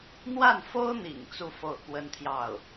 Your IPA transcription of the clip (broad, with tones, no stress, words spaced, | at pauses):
n̪wa˥˩nfo˥ʊ̯n̪ḭ˨˩ŋ t͡su˥˧fo˥˩ʊ̯ kwə˥nt̪ʰjɑ˥˩ʊ̯